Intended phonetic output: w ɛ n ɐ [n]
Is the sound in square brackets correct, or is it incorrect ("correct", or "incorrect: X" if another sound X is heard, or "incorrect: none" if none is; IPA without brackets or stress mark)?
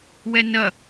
incorrect: none